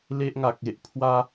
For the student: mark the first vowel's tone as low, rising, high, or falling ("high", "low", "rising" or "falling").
high